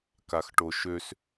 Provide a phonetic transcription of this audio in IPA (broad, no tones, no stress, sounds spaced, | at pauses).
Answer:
k a x ʈ o ʃ ø s